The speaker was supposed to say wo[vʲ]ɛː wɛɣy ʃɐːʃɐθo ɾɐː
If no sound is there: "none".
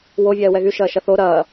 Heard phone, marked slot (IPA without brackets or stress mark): vʲ